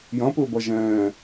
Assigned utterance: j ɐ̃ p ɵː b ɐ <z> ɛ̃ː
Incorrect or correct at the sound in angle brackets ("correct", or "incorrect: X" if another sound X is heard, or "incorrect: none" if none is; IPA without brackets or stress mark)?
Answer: incorrect: ʒ